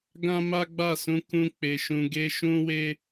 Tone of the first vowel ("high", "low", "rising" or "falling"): high